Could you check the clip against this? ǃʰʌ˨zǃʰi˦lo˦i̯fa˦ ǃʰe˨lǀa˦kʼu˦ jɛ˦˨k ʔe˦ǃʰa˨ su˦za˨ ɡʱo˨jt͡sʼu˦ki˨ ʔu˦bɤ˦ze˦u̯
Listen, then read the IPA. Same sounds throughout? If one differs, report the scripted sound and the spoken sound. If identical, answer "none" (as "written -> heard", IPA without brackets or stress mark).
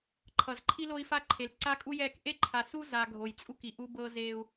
none